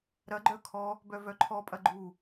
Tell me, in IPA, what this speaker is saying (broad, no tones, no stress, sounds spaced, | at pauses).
ɾ ɐ ɡ͡ǃ œ kʰ ɔ | b œ v œ ǃʰ ɔ pʼ ɐ ɡ͡ǃ u